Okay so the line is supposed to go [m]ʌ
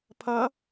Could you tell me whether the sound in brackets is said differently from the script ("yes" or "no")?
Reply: yes